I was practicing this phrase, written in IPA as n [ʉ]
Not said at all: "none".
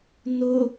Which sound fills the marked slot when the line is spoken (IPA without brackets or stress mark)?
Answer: ʊ